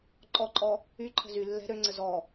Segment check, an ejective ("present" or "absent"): present